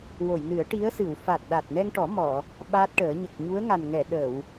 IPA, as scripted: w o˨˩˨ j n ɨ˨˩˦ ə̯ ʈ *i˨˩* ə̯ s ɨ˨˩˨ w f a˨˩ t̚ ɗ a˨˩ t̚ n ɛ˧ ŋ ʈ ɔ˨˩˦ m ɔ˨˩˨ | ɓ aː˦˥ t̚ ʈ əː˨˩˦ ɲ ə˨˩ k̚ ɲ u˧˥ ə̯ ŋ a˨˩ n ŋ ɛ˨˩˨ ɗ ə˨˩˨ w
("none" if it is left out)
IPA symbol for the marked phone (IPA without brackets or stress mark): i˧˥